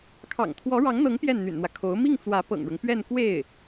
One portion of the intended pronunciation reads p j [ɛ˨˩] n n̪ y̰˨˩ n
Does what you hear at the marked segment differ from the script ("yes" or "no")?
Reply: yes